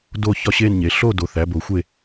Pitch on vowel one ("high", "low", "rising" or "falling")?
falling